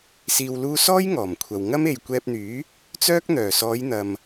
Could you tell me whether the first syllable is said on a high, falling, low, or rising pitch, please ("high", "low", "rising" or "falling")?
low